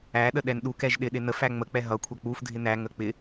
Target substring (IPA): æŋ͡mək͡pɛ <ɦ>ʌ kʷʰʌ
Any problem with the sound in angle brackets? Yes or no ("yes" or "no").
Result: no